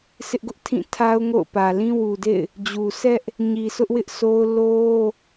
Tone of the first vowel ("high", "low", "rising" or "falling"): high